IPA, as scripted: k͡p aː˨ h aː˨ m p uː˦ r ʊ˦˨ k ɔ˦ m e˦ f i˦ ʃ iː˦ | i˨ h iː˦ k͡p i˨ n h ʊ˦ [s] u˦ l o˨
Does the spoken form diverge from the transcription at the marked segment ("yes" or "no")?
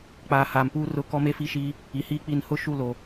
yes